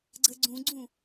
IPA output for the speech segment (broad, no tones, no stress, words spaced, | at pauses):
ɡ͡ǀəɡ͡ǀũɡ͡ǀũ